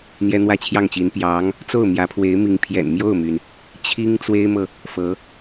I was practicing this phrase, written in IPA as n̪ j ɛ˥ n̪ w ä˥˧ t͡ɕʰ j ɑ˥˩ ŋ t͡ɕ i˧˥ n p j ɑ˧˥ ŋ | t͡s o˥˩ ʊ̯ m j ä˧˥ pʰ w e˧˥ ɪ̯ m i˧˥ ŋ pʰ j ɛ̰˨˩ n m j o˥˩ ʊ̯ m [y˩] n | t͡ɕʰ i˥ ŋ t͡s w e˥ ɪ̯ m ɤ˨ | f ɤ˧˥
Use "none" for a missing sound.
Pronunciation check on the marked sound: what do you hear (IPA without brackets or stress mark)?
y˩